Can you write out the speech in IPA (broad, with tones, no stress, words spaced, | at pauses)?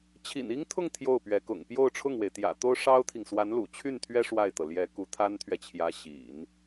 t͡ɕʰḭ˨˩ni˥ŋt̪ʰʊ˥˧ŋ t̪ʰjo˥˩ʊ̯pɥɛ˧˥kʊ̰˨˩ŋ pjo˥˧ʊ̯ʈ͡ʂʰʊ˥˩ŋwe˩ɪ̯t̪jä̰˨˩ t̪o˥ʊ̯ʂɑ˥ʊ̯t̪ʰi˨ŋ swa˧˥nlṵ˨˩t͡ɕʰy˥˩nt̪ʰɥɛ˥ ʂwa˥˩ɪ̯t̪ɤ˩ ljɛ˧˥ ku˧˥t̪ʰa˥nt̪ʰɥɛ˨t͡ɕʰjä˧˥ ɕḭ˨˩˦n